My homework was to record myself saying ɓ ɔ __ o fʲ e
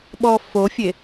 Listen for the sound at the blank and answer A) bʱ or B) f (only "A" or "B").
B